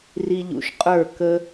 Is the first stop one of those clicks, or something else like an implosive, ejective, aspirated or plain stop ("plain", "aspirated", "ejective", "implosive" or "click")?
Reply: ejective